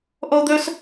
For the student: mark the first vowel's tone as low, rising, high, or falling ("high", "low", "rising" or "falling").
high